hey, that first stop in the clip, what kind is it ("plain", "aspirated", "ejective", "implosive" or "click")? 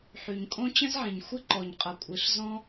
ejective